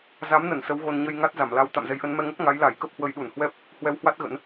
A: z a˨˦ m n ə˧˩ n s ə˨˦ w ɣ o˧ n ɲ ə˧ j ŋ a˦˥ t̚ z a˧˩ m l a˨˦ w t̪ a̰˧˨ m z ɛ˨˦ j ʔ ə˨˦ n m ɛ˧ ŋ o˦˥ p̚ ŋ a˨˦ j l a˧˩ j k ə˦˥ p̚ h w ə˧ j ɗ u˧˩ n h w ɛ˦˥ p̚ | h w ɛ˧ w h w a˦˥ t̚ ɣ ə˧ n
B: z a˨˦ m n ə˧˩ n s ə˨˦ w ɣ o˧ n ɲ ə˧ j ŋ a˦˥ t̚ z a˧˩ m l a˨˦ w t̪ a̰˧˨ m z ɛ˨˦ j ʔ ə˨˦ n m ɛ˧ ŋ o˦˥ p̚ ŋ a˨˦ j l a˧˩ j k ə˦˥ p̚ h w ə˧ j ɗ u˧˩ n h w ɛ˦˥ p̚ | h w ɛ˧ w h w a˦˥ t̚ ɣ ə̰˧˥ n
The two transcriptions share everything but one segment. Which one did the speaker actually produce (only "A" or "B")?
B